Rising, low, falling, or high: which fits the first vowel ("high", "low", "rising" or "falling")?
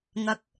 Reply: rising